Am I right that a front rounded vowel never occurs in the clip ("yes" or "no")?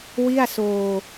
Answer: yes